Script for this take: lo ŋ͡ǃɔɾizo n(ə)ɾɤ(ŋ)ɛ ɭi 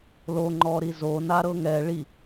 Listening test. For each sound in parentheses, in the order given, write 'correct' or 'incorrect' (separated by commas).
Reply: incorrect, correct